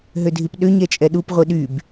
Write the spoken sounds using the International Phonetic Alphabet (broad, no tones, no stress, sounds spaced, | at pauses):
ɦ ø dʱ i p ɗ ø ɲ ɛ t͡ʃʼ ɛ ɗ u p ʁʷ i ɗ y b